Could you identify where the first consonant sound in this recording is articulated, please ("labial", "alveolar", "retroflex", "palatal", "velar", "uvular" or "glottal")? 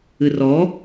alveolar